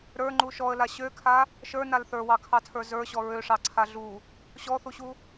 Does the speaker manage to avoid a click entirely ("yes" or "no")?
no